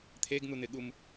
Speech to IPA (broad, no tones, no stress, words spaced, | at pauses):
t̪ʰeɡn̪un̪ɪɠum